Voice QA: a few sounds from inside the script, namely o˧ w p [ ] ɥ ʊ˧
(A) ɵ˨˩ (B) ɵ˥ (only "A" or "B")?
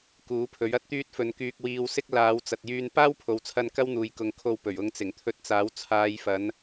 A